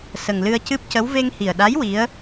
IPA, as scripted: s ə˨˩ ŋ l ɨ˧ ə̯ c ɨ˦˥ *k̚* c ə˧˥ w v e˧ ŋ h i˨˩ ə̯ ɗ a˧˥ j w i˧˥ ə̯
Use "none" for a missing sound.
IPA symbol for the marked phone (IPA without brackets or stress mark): p̚